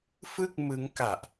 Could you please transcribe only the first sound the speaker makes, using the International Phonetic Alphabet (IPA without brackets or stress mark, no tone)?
f